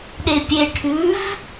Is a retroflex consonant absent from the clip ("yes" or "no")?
no